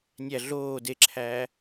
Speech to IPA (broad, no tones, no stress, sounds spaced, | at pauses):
nʲ æ ɮ oː d e ǁʰ æː